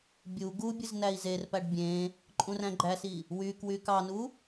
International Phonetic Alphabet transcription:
bʲ u ɡ u bʲ ɯ z n æ i̯ z e r p æ ɖ bʲ ẽ | ǃʼ ũ r æ̃ ɡ͡ǃ æ s i | w y k w y k ɑ n u

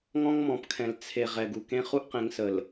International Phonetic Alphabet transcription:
ŋ ɔ̃˦ ŋ m ɔ̃˨ p kʰ ɛ̃˨ l t͡sʰ e˨ ʁ ɛ˨ ɡ u˨ k ẽ˦ χ u˦ ʔ q ẽ˨˦ ŋ s ə˨ l

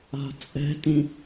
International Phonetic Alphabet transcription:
a̤ t͡sʼ ɛ̤ t ĩ

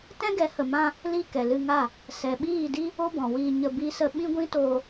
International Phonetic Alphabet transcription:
t ɛ̃˦ ɡ ɛ˨˦ h ə˨ m ã˧ | l i˦˨ k ɛ˨ l ɨ˧ ŋ a˦˨ | s ɛ˨ ɓ iː˦˨ d i˦ | o˦ b ɔ̃˨ w iː˧ ɲ ə˧ b i˧ s ə˧ ɓ ĩ˦ ɡʷ ĩ˦ t oː˧

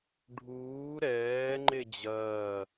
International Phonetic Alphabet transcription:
ɖʱ uː ɾ ɛː ŋ͡ǃ e d͡ʑ ɐː

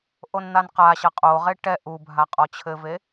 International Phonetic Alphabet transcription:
ʔ o n n̪ a n q a ɕ ɐ qʼ o ʁ e ʈ ɛ ʔ u bʱ a qʼ ɔ t͡ɕʰ ɘ v e

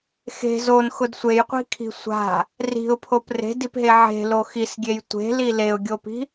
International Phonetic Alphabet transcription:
x e̤ z o n x ʊ d sʷ e j qʷ i̤ kʰ i̤ sʷ a̤ | r i̤ ʊ̯ pʰ o p r e̤ d i p ɦ e ʕ e̤ l o x i s ɡʲ e j tʷ e̤ l i l e ʊ̯ ɡʲ o p i̤

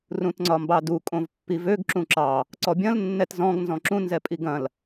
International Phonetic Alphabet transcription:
r ũ t ŋ͡ǀ ɒ m b ɑ d u kʼ õ v pː i v ø ɡ ǁ ũ ǁ ɑ | ǀ ɔ bʲ ɐ̃ l nː ɛ t z ɔ̃ ɡ n z ɔ̃ ǁ ũ n z ɛ pʼ i ɡ ɐ̃ l

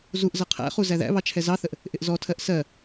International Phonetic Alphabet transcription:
z u ʔ z ʌ qʰ æ̰ χ u z æ ð æ̰ β ɑ t͡ʃʰ ɛ z ɑ θ ə ʔ | ʔ ɪ ʔ z ɔ tʰ ɜ ʔ s ɜ

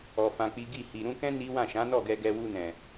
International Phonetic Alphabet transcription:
ɔ˨ f ã˧ k͡p i˦ ɡ i˦˨ h i˨ ɾ ũ˧ k ɛ̃˦ n i˦ w ã˦˨ ʃ ã˨˦ n ɔ˦˨ ɡ ɛ˧ ɡ ɛ˧ w u˧ n ɛ̃˨

